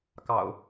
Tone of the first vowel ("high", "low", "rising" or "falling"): low